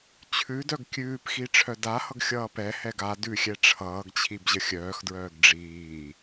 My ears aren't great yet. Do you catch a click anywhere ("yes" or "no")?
no